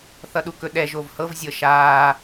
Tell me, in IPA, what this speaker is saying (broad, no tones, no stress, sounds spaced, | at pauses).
θ ʌ ɗ u k ɵ ɗ ɛ ʒ o v h ɤ v zʲ ɤ ʃ aː